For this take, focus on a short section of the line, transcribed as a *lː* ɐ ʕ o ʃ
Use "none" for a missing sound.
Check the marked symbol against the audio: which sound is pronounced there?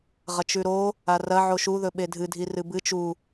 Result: r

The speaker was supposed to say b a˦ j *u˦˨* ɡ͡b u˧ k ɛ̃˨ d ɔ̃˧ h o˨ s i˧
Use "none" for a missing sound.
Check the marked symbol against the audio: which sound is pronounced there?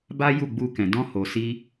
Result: u˦˨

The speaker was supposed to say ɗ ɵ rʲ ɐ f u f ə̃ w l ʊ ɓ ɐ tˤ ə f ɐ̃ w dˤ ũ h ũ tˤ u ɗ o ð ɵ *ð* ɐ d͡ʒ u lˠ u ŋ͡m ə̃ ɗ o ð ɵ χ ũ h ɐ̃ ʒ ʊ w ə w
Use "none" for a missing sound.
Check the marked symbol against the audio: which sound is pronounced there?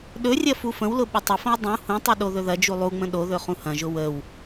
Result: ð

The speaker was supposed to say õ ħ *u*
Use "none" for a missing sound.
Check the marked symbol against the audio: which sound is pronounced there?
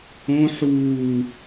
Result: uː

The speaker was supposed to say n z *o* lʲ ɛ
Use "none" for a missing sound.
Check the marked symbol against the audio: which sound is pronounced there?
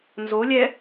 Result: o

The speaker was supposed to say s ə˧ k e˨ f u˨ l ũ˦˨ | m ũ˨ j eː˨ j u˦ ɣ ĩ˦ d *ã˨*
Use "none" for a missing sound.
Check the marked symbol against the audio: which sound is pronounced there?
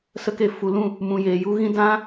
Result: ã˦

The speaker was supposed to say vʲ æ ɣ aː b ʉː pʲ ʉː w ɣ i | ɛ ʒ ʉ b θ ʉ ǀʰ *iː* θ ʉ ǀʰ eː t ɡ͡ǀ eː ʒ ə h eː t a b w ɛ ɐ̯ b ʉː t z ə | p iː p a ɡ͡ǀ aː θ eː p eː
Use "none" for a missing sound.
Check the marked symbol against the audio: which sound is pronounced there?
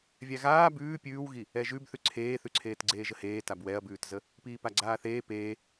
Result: eː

